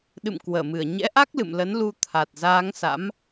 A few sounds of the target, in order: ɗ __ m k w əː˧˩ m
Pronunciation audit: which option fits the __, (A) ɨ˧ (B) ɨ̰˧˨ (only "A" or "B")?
B